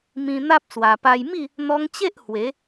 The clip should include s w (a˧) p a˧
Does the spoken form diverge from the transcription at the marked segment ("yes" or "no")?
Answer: yes